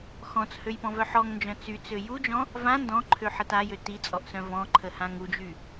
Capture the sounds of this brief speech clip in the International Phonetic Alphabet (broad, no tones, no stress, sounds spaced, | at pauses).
x ɔ̃ t͡s h ø j p ɔ̃ v œ ħ ɔ ŋ n d͡ʒ œ̃ t͡s y t͡s ø j u d͡ʒ ɔ̃ | v ã n d ɔ̃ ǃʰ ø ħ ə t a j ø t i t͡sʼ ɔ ʔ s œ̃ v ɔ̃ ǃʰ ə h ã ŋ u d͡ʒ y